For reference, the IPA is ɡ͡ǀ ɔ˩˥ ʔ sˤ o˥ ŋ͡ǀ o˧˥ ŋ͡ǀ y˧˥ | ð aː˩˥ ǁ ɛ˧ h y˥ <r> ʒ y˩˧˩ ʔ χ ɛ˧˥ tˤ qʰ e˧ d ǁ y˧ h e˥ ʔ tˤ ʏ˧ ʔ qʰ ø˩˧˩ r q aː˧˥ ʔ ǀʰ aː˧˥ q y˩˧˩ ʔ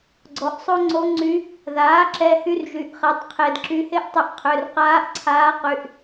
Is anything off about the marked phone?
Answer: no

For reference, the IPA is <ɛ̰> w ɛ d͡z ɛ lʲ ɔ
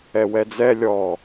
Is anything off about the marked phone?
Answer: yes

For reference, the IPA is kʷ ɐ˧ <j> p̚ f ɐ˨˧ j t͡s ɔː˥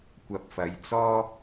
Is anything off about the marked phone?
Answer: yes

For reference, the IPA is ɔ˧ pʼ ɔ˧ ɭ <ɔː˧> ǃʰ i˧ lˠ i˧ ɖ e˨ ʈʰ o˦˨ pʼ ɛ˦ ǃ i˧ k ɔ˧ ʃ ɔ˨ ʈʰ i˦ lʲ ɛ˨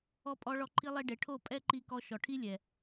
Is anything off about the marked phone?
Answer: yes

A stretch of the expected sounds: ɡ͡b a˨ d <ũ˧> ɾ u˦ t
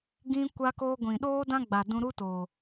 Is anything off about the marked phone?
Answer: no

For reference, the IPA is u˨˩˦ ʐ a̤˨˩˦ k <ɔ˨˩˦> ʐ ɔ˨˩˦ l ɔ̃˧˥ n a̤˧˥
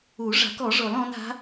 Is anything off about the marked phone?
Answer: no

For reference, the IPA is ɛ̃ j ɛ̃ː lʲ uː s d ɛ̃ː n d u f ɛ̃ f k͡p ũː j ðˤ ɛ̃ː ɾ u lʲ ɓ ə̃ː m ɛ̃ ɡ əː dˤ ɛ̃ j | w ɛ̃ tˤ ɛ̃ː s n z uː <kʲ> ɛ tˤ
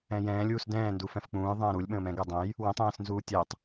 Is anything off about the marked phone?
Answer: yes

